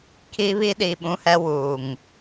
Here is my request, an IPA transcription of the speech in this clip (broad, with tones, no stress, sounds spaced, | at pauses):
kʰ i˦ β i˦ ɗ i˨ ɓ ũ˦ h ɛ˦ w uː˨ ŋ